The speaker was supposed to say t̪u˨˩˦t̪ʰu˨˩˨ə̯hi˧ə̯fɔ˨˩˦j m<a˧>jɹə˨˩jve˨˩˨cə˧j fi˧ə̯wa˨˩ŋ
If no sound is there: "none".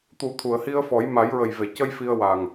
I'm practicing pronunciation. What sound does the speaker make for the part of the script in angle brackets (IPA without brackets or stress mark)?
a˨˩˦